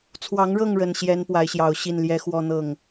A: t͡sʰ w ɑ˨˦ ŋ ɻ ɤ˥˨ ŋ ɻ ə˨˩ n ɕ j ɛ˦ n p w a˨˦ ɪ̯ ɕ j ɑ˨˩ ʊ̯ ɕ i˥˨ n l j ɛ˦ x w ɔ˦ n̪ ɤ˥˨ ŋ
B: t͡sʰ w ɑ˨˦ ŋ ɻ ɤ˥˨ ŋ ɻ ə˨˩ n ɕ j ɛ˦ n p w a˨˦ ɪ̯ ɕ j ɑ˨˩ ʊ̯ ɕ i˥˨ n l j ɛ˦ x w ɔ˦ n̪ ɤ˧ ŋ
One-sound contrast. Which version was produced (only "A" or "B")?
A